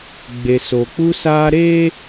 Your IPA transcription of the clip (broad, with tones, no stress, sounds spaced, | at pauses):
ɡ͡b e˨ s o˨ k͡p u˦ s aː˦ ɾ eː˦